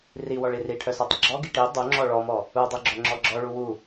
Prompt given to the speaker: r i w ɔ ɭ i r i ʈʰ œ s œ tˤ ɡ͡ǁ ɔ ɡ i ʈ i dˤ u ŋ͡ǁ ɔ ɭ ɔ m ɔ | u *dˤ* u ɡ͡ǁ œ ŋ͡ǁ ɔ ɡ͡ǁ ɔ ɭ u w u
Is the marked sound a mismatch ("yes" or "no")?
no